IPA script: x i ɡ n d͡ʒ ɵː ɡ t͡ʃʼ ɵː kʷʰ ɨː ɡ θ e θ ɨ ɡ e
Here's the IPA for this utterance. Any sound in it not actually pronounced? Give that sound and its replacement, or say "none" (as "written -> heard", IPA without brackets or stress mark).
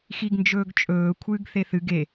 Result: none